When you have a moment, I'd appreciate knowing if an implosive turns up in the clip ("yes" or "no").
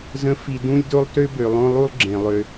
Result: no